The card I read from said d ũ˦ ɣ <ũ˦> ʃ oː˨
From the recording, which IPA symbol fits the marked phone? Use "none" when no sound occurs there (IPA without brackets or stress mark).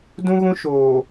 ũ˦